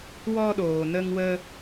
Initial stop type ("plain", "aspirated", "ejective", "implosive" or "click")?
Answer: implosive